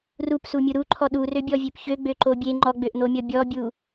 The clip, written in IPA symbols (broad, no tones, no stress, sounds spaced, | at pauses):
r u p s u mʲ u ɾ u ǃʰ ɔ ɗ u r ø bʲ ɔ vʲ ø p ç ø ɡ͡b ø ǃ o bʲ e ŋ͡ǃ ɔ ɡ͡b ø ʔ n̪ o mʲ ɔ bʲ ɔ bʲ u